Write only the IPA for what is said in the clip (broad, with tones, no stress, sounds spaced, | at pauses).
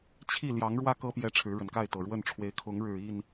t͡ɕʰ i˥˨ l j ɑ˨˦ ŋ ɻ w ä˦ k ɤ˦ p j ɛ˨˦ ʈ͡ʂʰ ɻ̩˨˦ ɻ ə˨˩ n k a˥˨ ɪ̯ t̪ ɤ˨˩ ɻ w ə˥˨ n ʈ͡ʂʰ w e˨˦ ɪ̯ kʰ ʊ˨˦ ŋ ɻ ɻ̩˨˩ i˥˨ n